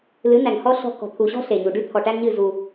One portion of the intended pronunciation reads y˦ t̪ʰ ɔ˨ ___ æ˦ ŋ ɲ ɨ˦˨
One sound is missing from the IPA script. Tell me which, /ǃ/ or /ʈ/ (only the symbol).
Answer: ʈ